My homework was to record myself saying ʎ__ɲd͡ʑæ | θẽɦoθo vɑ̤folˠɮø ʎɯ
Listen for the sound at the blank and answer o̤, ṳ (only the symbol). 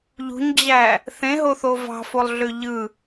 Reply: ṳ